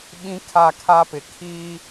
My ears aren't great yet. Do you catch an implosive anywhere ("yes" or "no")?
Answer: yes